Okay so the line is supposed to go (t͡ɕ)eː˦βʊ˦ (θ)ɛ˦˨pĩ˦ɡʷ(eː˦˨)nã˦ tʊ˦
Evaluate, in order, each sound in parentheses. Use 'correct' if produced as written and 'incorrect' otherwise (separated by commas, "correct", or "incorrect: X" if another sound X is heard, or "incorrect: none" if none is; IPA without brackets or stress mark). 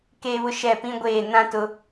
incorrect: k, incorrect: ʃ, correct